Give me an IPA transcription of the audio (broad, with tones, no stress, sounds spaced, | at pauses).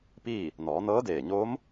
p iː˥˨ | n ɔː˩˧ n ɤː˧˥ d eː˧˩ ɲ oː˧˥ m